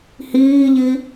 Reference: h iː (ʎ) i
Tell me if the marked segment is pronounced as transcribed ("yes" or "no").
yes